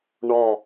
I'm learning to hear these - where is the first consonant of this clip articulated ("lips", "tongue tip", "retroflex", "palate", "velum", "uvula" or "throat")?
retroflex